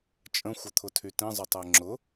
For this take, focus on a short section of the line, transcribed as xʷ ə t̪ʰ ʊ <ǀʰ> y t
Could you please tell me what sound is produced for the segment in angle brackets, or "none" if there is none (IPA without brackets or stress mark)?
tʰ